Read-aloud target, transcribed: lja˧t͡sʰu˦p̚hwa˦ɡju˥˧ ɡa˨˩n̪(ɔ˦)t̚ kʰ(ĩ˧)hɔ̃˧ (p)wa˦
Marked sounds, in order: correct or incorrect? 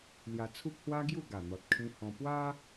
incorrect: ɔ˨, correct, correct

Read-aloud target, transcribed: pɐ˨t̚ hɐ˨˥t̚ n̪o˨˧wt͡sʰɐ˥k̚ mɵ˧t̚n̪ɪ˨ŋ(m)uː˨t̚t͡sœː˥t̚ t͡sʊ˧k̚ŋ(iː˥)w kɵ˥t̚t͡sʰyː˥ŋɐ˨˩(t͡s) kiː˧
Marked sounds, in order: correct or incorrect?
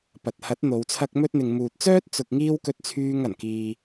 correct, correct, incorrect: n

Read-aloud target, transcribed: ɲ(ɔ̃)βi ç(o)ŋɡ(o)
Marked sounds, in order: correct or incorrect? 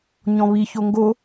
correct, correct, correct

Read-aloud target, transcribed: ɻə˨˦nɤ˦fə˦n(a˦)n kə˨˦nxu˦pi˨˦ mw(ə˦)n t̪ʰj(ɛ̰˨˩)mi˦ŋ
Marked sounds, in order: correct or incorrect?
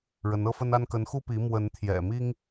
correct, incorrect: ə˨˦, correct

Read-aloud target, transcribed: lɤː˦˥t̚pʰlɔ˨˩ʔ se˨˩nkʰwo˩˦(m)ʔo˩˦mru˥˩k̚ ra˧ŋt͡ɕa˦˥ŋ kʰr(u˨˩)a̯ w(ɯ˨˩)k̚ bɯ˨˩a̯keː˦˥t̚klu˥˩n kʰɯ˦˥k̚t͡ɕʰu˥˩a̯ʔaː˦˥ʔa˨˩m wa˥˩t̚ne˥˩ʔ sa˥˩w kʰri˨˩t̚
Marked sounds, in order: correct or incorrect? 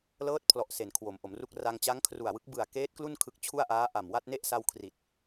correct, correct, incorrect: ɯ˦˥

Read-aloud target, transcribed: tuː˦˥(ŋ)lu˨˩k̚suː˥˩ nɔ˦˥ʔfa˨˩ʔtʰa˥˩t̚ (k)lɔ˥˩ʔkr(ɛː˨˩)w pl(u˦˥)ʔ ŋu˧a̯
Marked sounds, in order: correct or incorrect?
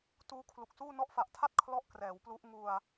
incorrect: kʰ, incorrect: kʰ, incorrect: ɛː˩˦, correct

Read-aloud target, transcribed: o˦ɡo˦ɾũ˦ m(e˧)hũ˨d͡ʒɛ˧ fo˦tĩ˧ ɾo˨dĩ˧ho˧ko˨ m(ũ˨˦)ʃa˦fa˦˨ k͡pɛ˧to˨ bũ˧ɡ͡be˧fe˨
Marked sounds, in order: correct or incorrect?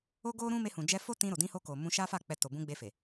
correct, incorrect: ũ˧

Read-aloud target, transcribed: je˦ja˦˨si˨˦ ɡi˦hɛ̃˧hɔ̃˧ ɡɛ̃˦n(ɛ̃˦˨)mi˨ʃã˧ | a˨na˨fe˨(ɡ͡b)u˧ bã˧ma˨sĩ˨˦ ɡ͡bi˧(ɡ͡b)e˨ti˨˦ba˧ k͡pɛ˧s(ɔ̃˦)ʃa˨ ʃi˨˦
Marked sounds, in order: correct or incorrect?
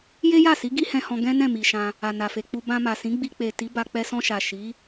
correct, incorrect: k͡p, incorrect: k͡p, incorrect: ɔ̃˧

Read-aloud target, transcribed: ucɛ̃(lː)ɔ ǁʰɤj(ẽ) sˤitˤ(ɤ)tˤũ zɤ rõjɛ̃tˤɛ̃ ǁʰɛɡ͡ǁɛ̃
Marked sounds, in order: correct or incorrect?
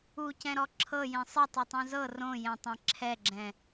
incorrect: ɾ, correct, incorrect: ɯ

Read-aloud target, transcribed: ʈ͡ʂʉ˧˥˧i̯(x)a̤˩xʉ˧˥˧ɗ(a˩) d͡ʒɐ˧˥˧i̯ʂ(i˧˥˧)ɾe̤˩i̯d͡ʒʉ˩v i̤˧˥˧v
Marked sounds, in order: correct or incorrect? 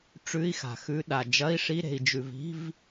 correct, correct, correct

